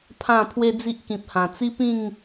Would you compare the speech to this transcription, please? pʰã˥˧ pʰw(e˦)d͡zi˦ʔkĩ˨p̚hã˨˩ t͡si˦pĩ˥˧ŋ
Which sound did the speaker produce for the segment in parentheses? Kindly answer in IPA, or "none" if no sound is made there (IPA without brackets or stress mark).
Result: e˦